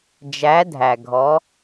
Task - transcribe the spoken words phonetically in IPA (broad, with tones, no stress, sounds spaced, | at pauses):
d͡ʒ æ˨˥ dʱ æ˩ ɡʱ ɔ˨˥